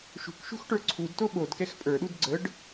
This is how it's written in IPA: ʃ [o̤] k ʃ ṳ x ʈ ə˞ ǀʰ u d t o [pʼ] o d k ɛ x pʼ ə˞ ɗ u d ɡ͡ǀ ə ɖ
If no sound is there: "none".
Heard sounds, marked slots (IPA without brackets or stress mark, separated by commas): ṳ, ɓ